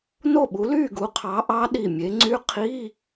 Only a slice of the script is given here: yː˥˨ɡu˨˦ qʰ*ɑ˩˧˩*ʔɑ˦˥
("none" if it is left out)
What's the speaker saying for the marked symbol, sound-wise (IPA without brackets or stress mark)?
ɑ˨˦